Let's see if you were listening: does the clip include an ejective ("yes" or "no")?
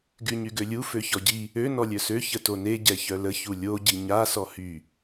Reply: no